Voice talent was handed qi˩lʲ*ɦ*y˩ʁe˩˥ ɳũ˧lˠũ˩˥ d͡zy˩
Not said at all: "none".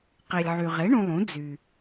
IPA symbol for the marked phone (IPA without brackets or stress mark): ʕ